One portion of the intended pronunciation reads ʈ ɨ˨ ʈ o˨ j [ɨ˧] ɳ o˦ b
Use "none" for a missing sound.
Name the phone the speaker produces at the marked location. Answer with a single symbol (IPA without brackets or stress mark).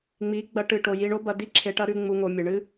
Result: i˧